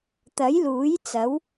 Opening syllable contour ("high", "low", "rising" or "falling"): rising